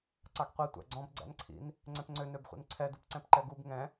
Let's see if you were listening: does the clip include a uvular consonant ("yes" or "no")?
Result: yes